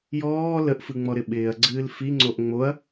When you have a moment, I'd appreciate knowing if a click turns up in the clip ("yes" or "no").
yes